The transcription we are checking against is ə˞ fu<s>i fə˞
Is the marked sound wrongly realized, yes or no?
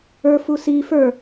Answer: no